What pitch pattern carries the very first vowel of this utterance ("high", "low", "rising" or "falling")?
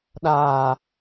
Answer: low